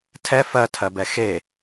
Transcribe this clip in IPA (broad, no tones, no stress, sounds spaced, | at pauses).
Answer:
tʰ ɛ f ɜ tʰ ɜ b ɛ x e